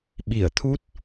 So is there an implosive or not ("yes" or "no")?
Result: yes